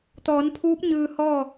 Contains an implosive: no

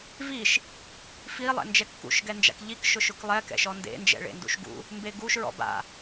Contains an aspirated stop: no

